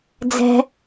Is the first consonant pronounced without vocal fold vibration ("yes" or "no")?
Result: no